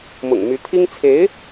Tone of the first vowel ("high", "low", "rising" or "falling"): low